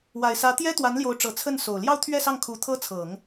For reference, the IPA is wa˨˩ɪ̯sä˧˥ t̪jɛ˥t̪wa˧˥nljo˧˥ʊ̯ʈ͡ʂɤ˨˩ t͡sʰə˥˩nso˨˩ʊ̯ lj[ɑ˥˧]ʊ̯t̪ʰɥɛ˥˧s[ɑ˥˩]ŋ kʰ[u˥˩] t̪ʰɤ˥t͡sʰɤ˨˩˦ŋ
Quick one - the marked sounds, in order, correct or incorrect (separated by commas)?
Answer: correct, correct, incorrect